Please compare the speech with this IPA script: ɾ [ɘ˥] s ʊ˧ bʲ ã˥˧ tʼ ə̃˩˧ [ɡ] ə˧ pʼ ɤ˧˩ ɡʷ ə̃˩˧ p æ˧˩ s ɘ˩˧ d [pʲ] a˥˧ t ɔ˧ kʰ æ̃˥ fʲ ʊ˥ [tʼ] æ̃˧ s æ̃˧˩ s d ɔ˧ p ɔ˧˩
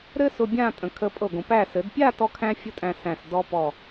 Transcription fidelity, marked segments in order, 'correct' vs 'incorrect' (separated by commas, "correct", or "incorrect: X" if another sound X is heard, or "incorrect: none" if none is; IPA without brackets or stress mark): correct, incorrect: kʰ, correct, correct